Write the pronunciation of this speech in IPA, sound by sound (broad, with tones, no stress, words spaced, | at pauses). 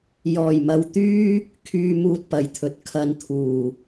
jɔː˨˩jmɐ˨w t̪yː˥ | kʰyː˨ muː˧t̚pɐ˨jt̪ʰɵ˨t̚ kʰɐ˧nt̪ʰuː˨˩